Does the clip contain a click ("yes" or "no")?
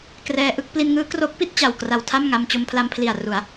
no